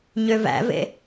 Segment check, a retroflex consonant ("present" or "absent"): absent